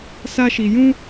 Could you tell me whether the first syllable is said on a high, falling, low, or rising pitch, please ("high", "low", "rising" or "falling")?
high